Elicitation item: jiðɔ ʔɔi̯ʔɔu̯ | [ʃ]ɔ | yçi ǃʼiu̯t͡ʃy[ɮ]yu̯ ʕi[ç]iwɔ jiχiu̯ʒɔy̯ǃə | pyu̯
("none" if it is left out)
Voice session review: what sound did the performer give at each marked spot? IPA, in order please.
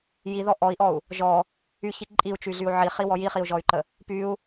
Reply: ʒ, ɮ, χ

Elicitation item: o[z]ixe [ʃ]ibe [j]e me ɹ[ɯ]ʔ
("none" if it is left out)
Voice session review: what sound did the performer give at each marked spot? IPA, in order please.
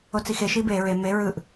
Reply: t͡s, ʃ, ɹ, ɯ

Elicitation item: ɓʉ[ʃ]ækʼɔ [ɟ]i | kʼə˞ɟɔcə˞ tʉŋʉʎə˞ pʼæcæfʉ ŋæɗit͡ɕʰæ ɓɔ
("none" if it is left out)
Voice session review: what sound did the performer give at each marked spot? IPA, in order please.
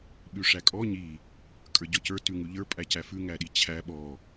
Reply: ʂ, ɲ

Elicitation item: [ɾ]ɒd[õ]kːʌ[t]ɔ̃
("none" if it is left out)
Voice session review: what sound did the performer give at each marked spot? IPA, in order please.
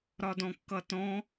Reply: ɾ, ɔ̃, t

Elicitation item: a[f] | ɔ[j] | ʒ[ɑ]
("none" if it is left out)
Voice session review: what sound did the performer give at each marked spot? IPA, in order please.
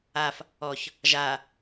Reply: f, ç, a

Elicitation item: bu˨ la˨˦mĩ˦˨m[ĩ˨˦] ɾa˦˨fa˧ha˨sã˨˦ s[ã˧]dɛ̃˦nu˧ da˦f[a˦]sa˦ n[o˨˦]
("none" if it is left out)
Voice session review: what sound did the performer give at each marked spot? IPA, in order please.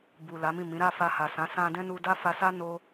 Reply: ĩ˨˦, ã˧, a˧, o˦

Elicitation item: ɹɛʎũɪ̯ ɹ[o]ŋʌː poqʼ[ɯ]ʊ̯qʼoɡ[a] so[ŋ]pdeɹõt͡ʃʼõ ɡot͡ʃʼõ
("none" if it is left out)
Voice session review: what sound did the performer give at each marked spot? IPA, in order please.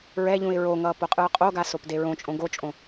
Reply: o, ɯ, a, none

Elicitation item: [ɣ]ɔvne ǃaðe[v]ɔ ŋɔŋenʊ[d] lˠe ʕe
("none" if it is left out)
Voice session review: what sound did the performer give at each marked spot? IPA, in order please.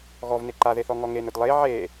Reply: ɣ, θ, d

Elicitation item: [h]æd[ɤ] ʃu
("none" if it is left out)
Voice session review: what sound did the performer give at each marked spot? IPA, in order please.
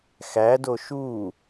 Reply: x, o

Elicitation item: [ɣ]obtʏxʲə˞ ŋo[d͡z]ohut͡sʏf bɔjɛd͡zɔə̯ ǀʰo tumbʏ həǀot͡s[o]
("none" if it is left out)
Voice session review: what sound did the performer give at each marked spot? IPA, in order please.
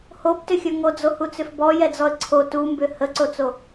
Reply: h, d͡z, o

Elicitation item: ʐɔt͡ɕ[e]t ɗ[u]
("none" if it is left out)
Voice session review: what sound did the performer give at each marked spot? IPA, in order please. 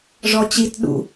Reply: i, ṵ

